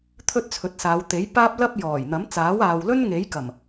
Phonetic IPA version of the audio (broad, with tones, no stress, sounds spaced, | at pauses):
t̪ʰ ɵ˥ t̚ t͡sʰ ɵ˨˥ t̚ s aː˨˧ w t̪ e˨˥ j p aː˥ p̚ l ɐ˥ p̚ j ɔː˨˩ j n̪ ɐ˨˥ m t͡s aː˨˥ w aː˨ w l ɵ˥ n ŋ e˨˥ j k ɐ˨˩ m